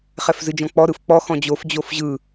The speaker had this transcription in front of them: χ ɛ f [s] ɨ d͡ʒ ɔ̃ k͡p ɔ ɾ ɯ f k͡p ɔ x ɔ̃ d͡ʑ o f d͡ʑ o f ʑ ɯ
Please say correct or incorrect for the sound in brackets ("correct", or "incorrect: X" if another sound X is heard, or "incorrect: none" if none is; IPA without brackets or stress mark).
incorrect: z